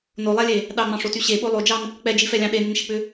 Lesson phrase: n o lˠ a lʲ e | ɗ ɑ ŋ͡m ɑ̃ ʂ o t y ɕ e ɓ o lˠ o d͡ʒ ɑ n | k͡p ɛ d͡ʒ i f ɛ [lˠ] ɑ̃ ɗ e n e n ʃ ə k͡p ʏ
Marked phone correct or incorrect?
incorrect